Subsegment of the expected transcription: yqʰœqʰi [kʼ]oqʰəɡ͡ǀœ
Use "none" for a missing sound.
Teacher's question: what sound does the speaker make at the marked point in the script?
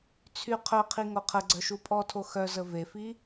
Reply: ŋ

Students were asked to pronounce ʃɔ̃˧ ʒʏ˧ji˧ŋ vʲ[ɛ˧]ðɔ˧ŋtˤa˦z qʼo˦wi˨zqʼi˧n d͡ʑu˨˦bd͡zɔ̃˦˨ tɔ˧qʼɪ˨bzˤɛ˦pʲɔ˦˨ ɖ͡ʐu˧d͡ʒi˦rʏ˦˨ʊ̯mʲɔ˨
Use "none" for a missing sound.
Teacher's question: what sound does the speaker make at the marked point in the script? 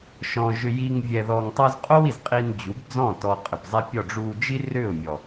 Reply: ɛ˧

